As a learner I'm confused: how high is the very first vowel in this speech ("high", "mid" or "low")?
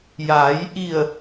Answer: low